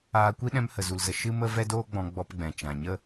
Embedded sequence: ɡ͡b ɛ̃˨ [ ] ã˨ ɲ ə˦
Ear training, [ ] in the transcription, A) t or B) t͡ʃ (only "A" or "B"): B